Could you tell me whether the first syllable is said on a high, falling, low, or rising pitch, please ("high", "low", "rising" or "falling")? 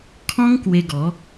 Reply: high